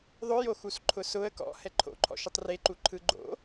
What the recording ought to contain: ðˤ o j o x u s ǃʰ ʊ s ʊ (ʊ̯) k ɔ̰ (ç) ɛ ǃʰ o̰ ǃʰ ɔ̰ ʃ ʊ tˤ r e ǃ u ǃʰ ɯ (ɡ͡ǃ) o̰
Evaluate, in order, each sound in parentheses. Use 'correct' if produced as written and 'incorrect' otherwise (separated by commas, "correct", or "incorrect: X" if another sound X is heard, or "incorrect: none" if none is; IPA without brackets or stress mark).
incorrect: ə̯, incorrect: h, correct